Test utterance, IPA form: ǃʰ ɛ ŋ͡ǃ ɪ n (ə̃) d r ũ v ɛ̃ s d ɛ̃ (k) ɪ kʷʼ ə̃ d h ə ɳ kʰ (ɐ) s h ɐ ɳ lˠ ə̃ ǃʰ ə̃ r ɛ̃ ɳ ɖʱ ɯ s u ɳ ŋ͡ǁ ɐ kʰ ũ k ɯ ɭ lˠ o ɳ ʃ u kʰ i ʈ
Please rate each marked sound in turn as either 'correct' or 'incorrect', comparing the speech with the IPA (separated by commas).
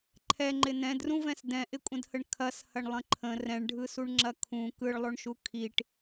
incorrect, incorrect, correct